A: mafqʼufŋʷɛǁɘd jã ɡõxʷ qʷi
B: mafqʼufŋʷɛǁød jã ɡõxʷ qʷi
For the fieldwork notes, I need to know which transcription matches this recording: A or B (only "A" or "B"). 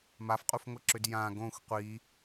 B